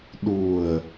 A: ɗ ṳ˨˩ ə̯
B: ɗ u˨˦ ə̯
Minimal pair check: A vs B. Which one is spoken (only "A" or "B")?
A